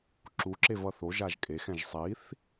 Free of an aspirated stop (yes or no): yes